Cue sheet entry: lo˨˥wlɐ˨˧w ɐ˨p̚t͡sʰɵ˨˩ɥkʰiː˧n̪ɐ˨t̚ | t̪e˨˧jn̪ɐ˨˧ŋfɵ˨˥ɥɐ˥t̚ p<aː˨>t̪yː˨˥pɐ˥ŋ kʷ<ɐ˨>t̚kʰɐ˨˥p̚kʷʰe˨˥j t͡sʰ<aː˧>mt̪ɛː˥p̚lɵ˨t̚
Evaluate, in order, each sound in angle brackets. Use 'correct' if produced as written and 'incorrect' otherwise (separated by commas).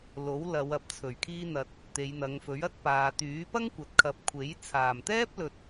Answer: correct, correct, incorrect